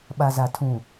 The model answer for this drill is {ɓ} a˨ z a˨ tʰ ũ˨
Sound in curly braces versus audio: correct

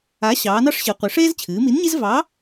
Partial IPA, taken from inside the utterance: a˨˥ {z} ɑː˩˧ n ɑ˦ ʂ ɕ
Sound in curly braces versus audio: incorrect: ɕ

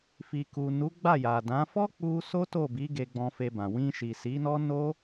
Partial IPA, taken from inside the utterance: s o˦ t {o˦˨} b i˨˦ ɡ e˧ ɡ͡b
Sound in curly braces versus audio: correct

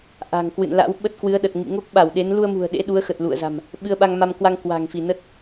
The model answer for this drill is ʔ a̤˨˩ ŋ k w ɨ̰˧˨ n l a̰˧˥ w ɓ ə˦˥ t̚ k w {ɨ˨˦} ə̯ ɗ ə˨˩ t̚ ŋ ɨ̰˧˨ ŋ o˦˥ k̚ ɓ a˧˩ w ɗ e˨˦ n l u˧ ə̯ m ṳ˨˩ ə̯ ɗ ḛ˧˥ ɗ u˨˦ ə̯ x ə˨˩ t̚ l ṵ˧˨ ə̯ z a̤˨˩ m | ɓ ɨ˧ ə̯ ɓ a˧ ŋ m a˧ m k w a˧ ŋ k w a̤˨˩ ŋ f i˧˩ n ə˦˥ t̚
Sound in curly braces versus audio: correct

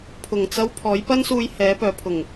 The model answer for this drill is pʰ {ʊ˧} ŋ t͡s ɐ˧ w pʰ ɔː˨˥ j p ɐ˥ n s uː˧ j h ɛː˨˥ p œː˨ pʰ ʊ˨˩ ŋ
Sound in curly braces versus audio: incorrect: ʊ˨˩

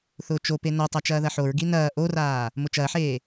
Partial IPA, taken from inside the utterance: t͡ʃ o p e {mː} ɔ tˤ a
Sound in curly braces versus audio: incorrect: n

